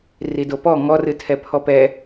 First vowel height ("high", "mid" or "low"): high